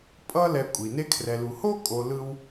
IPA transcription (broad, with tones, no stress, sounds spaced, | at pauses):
pʼ ʌ˦ l ɛ˨ kʷʼ i˩ n e˦ kʰ r ɛ˨ l u˨ h o˥ kʼ o˨ l ɯ˥ w